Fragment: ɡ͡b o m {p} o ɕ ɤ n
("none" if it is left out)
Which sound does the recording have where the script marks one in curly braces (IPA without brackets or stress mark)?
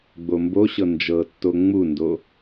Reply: b